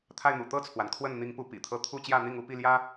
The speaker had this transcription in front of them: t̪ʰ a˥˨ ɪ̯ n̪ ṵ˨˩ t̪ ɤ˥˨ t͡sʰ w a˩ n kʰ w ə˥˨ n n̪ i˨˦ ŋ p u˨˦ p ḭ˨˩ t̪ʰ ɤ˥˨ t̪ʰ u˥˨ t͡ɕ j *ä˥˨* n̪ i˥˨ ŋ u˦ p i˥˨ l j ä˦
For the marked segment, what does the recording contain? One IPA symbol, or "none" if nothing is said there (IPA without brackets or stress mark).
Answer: ä˥˨